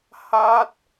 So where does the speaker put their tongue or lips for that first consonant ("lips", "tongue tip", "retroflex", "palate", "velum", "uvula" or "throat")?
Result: throat